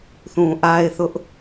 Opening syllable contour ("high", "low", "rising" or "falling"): low